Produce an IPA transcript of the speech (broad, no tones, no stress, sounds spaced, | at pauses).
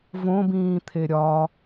v õ b ĩː t̪ʰ e ɾʲ ɒ